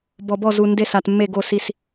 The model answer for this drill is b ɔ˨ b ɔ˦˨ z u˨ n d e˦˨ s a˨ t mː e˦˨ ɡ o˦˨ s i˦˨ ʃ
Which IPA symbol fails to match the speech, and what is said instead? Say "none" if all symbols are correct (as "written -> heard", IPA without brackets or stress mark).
ʃ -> s